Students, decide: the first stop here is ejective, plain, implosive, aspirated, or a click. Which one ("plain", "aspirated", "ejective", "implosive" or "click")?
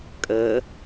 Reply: ejective